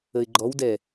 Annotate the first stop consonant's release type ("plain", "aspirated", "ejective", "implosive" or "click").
click